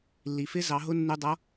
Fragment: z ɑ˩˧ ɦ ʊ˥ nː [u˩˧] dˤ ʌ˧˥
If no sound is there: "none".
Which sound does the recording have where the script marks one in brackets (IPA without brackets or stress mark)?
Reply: u˧